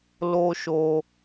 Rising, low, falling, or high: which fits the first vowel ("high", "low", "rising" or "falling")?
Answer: high